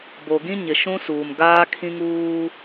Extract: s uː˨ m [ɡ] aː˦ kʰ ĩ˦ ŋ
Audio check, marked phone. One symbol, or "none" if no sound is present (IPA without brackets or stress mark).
ɡ